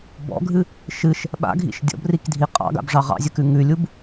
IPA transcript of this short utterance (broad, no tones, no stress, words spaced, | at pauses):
bɔ̰ɡʱɨ | ʃɨʃ | ɓa̰ɡʱḭʃ dʲɔ̰brikdʱi qʼɑ̰ɡa̰bʐɑ ʁɑ̰zʲəkʉ ŋʉlʲub